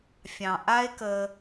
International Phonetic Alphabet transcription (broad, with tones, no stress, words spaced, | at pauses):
fʲɑ̃˨ʔa˦e̯kə˧